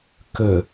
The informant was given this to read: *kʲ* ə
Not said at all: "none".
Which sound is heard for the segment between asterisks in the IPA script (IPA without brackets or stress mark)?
k